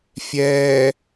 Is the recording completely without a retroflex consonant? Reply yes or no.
yes